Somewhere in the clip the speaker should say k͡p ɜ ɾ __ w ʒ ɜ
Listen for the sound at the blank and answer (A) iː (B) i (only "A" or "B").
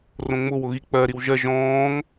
B